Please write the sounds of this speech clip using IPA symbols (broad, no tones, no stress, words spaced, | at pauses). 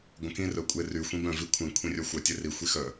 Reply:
ɡʷə̃kĩ rœkʷʼery xʷĩbœ̃ vikʷʰĩ kʷʰĩrʲœxʷœ tʲeri xʷixœ